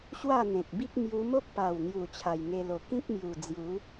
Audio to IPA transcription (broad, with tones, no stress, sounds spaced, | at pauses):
ɕ w a˥˧ n̪ ẽ˨ k̚ b i˦ k̚ m j u˧ m o˦ k̚ p a˨˩ w n̪ j u˨˩ t͡ɕʰ a˨˩ j ŋ e˧ l o˨˩ k ĩ˦ k̚ m j u˨˩ d͡z j u˨˦